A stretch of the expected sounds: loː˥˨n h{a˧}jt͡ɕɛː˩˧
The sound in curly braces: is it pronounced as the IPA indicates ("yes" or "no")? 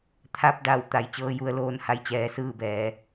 no